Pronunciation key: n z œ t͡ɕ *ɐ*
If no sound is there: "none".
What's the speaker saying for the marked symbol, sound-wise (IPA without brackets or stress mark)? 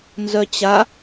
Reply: a